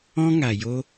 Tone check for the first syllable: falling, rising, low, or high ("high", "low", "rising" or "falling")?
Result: high